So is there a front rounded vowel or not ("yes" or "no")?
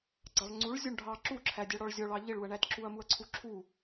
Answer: no